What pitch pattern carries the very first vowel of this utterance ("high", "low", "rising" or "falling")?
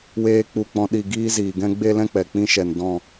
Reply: high